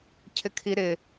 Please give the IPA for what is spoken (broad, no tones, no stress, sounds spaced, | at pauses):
cʰ ɪ kʰ i ɾ ɪ